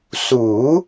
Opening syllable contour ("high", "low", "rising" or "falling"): rising